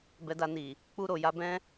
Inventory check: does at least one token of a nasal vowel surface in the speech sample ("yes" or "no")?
yes